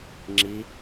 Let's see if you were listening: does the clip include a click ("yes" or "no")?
yes